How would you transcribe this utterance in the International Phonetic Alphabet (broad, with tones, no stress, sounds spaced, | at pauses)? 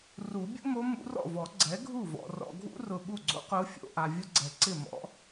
r u˨˩˦ bʲ ṵ˥ m o˧˥ m ṵ˧˥ r ɔ̰˥˩ v ɔ˨˩˦ ɡ͡ǀ ɛ˩˥ ɡʱ u˥˩ v ɔ̰˨ r ɔ̰˨ ɡʱ ṵ˥ r ʊ˨ ɓ u˥˩ ɡ͡ǀ o̰˥ q ʊː˧˥ fʲ o̰˨ ʔ a˨ vʲ ʊ˥ ɡ͡ǀ ɛ˨ ǀ ɪ˥˩ m ɔ̰˧˥